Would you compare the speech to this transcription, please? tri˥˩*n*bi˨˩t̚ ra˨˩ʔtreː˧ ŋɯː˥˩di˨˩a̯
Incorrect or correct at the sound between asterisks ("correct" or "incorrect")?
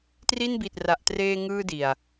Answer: correct